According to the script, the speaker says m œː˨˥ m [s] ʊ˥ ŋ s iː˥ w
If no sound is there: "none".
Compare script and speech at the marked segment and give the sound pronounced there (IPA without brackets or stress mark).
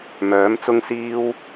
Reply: t͡s